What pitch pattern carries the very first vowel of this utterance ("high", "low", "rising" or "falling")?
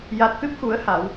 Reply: low